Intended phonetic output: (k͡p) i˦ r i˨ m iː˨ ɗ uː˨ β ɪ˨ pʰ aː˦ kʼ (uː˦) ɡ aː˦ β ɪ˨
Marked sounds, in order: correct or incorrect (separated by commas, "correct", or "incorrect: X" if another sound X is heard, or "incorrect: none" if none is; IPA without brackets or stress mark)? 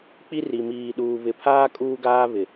correct, correct